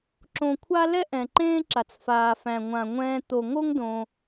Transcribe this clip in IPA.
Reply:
ǁ õ˨ kʷʰ a˦ l ɛ˥ ʔ ɛ̃˩ ǃ ẽː˦ ǁ a˩ t͡s f aː˩ f æ̃˩ ŋʷ ã˩ ŋʷ ɛ̃ː˨ t̪ o˩ ŋ o˦ ŋ d õ˩

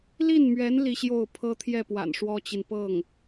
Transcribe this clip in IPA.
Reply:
l i˥˩ n m ɥ ɛ˧˥ n l i˥˧ ɕ j o˥˩ ʊ̯ pʰ ɤ˥ t̪ʰ j ɛ˥˩ p w a̰˨˩ n ʂ w ɔ˥ t͡ɕ i˨ n p ɤ˥˩ ŋ

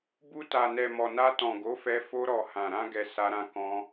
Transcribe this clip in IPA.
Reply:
b u˧ t a˨ n ɛ˨ m ɔ˨ n a˧ t ɔ̃˨ ɡ o˨˦ f ɛ˧ f o˧ ɾ ɔ˨ h ã˨ ɾ ã˧ ɡ ɛ˨ s a˧ ɾ ã˧ k ɔ̃˧

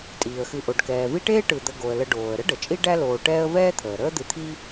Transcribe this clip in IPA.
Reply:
tʼ iː˩ ə̯ x ɨ˨ ʔ o˩ ɖ k ɛː˩ v i˦ ʈ eː˥ ʈ ɯ˨ d̪ ə˨ ɡ o˩ ə̯ l ə˨ ɖ oː˩ ə̯ ɾ ə˥ ɖ ə˩ t͡ʃʼ i˦ ɖ æ˦ l oː˨ ʈ ɛː˦ ə̯ v ɛː˥ t̪ʰ əː˩ ɾ əː˦ d̪ ɨ˨ t̪ʰ i˦

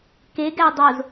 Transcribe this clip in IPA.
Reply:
k e ɡ æ dˤ o z

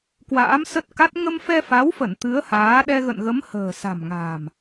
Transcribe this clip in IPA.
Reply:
k w a̰ː˧˥ m s ə˦˥ t̚ k a˦˥ t̚ ŋ ə˧ m f ɛ˧ f a˨˦ w f ə˧˩ n t̪ ɨ˨˦ ə̯ h aː˨˦ ɗ ɛ˧ ɣ ə̰˧˨ n ɣ ə˨˦ m h ə̤ː˨˩ s a̤˨˩ m ŋ a̤ː˨˩ m

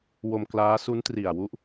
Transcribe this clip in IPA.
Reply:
w o˧ m k l aː˦˥ s u˦˥ n t r i˨˩ a̯ w u˦˥ ʔ

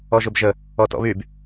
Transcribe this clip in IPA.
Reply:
ɔ ʒ ʊ b ʒ ə | ɔ t ɔ̰ β y b

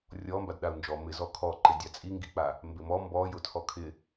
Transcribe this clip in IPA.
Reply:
rʲ ɔ m b a d ɗ a u̯ n d͡ʒ ɔ m ɪ z ɔ kʰ ɔ ǃ ɪ dʲ a t͡sʼ i ŋ ɡ i k͡p a | m b ɪ m ɔ m b ɔ j ʊ tʰ ɔ kʰ ɪ

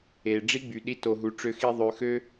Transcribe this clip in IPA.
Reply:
e˨ ɖ͡ʐ i˦ ɡ͡b y˨ ɗ i˧ t o˧ ɦ u˧ ʈ͡ʂ ø˦ x i˦ ðˤ ø˧ x ø˦

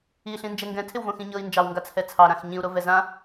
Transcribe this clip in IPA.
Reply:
i ɬ ĩ n d͡ʒ ɛ ŋ ɡ ɛ̃ tʰ ɪ w v õ x ĩ ɲ ɤ i̯ n d͡ʒ ɑ w ŋ ɡ a t͡sʰ ɛ t͡sʰ ɑ ɾ ã x ɲ ĩ u̯ ɾ o v ɛ z ã

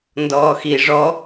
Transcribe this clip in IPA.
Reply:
n d ɔː x i ʐ ɔ

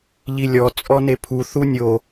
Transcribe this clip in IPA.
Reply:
ʎ i lʲ ɔ t͡sʼ ɔ n e pʰ u θ u nʲ o

